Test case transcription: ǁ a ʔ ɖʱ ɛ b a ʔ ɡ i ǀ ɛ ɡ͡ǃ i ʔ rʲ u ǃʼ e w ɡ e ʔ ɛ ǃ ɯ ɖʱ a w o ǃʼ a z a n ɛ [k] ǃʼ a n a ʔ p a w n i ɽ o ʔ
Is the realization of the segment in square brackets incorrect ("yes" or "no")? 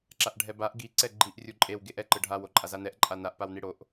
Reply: yes